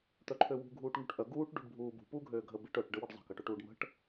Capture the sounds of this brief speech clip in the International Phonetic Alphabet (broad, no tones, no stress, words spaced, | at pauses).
t̪œǃʰøwṳ ɡʱuːʈŋṳʈʔœ ɡuːʈ ɖṳɖbʱuːbṳ puːɡʱøːɡʱə biʈœʈ ɖəwəɖzˤə̤ kəʈøʈuːɖmə̤ʈ